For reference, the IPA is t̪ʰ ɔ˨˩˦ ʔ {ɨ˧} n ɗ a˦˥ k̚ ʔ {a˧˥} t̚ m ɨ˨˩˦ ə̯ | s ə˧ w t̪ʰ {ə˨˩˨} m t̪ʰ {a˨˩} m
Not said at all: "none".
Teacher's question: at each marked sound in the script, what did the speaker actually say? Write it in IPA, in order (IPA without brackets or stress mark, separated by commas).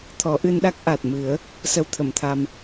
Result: ɨ˧, a˨˩, ə˨˩˨, a˧